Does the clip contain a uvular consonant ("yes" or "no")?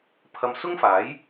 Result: no